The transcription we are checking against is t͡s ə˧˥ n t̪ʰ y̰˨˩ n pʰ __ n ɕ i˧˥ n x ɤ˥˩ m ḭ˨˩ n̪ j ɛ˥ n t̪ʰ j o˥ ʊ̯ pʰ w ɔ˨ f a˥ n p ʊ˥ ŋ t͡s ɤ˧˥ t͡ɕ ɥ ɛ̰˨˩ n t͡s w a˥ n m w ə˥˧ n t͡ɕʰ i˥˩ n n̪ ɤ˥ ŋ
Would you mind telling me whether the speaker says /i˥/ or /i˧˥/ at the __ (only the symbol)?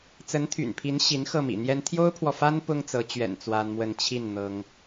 i˧˥